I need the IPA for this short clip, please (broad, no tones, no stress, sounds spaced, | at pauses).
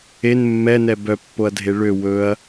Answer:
e n mː ɛ n ɛ b œ pː o ɐ̯ dʱ e ɭ ø w ɵ ɐ̯